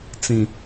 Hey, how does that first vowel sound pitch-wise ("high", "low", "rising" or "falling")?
low